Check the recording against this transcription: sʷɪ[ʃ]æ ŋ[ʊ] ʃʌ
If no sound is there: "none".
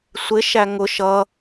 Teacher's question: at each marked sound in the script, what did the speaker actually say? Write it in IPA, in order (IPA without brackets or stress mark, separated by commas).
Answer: ʃ, ʊ